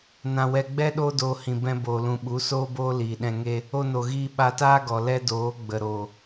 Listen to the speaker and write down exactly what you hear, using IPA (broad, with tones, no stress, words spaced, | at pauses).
nã˨wɛ˨ɡ͡bɛ˦ ɗoː˦doː˧hĩ˨ bɛ̃˧ boː˨lũ˨ ɓu˨˦soː˦boː˦ liː˨ɗɛ̃˧ŋe˦ | o˧no˨ɣiː˧ ɓa˧taː˦ɡɔ˨ lɛ˦doː˨˦ ɡ͡bə˨ɾo˨